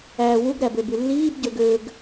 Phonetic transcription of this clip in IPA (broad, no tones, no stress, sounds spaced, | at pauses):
æː w u ɡ ɾ æ b ø b y lː iː b ɟ ø ɡ ø ɡ